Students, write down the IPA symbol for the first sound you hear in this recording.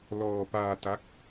l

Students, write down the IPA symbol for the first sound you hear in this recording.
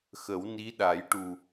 x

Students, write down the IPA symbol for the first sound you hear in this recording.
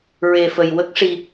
ɹ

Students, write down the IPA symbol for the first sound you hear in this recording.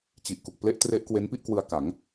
t͡ɕ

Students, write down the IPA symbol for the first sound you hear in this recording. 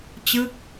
t͡ɕ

